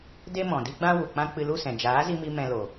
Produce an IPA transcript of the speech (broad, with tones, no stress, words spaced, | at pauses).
de˦mɔ̃˨di˦ɡ͡bã˦ wu˨k͡pã˦ k͡pɨ˧lu˦˨sɛ̃˨ d͡ʒaː˨˦zi˧mi˧ mɛ̃˧lo˨